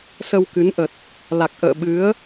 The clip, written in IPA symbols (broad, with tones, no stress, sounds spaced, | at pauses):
s ə˧ w k ɨ˨˦ n ʔ ə˨˩ t̚ | l a˨˩ k̚ ʔ ə̰ː˧˨ ɓ ɨ˨˦ ə̯